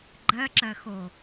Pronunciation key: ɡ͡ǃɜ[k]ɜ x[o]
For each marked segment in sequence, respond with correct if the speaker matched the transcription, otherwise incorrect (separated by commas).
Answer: incorrect, correct